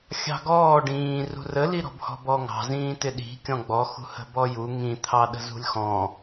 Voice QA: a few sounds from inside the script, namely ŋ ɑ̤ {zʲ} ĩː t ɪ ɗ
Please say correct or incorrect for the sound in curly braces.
incorrect